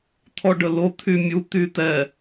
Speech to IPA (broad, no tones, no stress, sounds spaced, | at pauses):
t̪ʰ ɔ ɖ ə l o t̪ʰ y mʲ u t̪ y t̪ ɛ